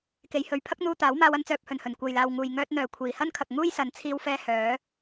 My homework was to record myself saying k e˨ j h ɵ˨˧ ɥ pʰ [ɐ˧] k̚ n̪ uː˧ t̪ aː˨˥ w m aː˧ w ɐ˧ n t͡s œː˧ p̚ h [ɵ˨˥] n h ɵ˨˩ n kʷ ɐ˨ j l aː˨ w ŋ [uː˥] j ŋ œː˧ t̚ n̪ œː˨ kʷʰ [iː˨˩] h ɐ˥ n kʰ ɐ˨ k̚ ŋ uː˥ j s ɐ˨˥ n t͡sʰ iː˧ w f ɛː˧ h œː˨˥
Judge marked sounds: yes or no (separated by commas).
no, no, no, yes